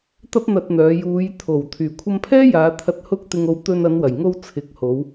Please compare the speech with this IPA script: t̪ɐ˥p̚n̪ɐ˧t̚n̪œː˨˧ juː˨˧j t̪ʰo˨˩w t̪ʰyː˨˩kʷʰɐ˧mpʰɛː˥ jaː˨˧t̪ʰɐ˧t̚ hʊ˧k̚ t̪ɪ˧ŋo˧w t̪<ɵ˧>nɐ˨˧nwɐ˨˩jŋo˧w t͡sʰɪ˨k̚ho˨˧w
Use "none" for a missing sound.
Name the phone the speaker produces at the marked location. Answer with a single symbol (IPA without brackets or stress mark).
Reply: ɵ˧